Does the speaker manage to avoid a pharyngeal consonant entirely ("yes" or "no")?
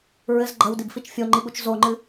yes